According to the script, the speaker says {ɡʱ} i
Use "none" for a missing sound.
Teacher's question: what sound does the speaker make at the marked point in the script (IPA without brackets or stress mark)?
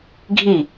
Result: ɡʱ